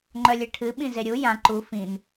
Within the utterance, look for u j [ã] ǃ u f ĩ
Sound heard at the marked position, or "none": ã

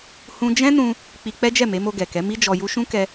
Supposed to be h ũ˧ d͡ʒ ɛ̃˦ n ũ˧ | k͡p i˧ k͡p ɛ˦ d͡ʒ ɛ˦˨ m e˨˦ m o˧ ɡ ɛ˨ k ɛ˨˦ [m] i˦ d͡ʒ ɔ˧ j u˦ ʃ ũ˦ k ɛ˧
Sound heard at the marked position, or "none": m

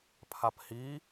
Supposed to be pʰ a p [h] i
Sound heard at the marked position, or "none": h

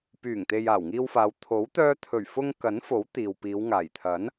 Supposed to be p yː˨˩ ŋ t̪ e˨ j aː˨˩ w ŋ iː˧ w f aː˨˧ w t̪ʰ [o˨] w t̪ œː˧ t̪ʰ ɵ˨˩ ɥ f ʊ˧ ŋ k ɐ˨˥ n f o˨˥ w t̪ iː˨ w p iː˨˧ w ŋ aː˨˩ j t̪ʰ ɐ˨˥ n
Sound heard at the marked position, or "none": o˨˥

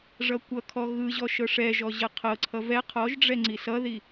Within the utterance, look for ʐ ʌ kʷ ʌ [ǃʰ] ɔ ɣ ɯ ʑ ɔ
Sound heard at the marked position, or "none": kʰ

